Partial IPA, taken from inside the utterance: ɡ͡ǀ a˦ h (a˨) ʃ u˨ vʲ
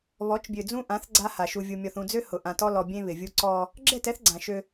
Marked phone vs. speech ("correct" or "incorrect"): correct